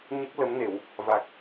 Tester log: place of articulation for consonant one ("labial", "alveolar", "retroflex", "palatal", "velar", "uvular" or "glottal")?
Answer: palatal